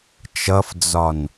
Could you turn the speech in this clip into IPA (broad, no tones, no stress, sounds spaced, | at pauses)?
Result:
t͡ʃ ʌ f d͡z ɒ n